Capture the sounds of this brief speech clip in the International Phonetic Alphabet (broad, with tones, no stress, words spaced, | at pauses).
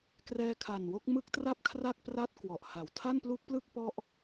krɛː˧kʰa˨˩nwo˦˥k̚ mɯ˦˥k̚tra˥˩p̚kʰra˥˩k̚ pra˥˩t̚ kwɔ˨˩ʔha˨˩w tʰa˥˩nplu˦˥k̚plɯ˥˩k̚ pɔ˦˥ʔ